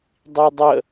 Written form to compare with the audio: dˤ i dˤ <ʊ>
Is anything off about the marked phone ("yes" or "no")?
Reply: yes